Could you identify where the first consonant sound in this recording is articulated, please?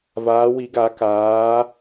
labial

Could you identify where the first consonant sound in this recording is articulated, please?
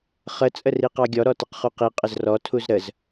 uvular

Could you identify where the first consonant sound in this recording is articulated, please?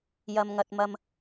palatal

